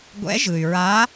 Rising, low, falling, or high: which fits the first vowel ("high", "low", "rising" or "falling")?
rising